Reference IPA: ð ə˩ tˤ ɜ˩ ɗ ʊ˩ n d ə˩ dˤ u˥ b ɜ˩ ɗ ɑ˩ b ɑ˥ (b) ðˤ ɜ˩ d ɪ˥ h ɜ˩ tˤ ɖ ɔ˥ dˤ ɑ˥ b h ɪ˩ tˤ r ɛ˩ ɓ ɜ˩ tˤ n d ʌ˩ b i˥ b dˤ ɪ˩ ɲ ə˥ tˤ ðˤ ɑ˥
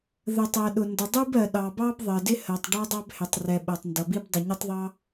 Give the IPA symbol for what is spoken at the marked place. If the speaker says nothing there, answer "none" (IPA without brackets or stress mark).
b